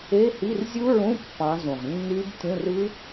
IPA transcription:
e˧˥˧ h i˧˥˧ r zʲ u˦˥ ɹ ũ˧˥˧ pː ɑ̃˨˦ z ũ˨˩ ʁ nː y˦˥ b tʲ ũ˧˥˧ r ɯ˦˥

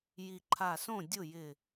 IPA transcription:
j i˧˩ ǃʰ a˧˩ s õ˥˩ dʲ ʊ˥˩ j ɪ˧˩

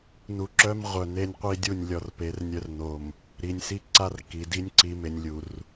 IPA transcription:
n u˨ ǁ œ˦ m ʁʷ œ˨ n e˦ nʲ qʷ i˦ dʲ u˦˨ nʲ lʲ ɔ˨ r p e˨˦ r nʲ œ˦ r n o˨ m | ɾ i˨ nʲ s i˦ ǀ a˦ r k i˨ d i˦ nʲ ǀ i˨ m e˨ nʲ lʲ u˨ r

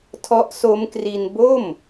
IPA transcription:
tʰ ɔ˦˥ ʔ s o˦˥ m k r i˧ n b o˥˩ m

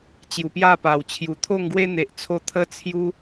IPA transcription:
t͡ɕ j u˨˩ p j a˥˧ p a˨˩ w t͡ɕʰ j u˨˩ t̪ʰ o˥˧ ŋ ɡ w e˦ n̪ e˨ ʔ t͡sʰ o˧ t̪ʰ ə˦ t͡sʰ j u˦

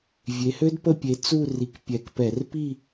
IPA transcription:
vʲ e˨˦ h ø˥ d p ə˥˧ pʲ e˨˦ t͡s u˥˧ r i˨˦ k pʲ ɛ˨˦ k p ɛ˧˩˧ r p i˥˧

